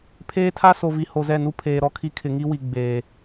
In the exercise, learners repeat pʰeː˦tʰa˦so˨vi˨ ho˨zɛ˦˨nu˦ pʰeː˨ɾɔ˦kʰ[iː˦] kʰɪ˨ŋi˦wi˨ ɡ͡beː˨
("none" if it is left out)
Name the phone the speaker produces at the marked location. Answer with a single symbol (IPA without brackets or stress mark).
i˦